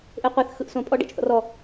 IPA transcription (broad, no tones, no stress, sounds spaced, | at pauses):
ʔ e qʷ ɛ θ x ɯ ʔ s õ pʼ ɔ ɖ ɛ̰ t͡ʃ θ ɔ̰ r ɔ